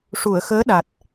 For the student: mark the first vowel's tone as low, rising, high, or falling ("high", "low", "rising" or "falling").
low